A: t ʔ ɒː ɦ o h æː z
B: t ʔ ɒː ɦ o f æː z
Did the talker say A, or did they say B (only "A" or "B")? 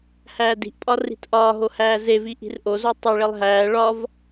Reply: A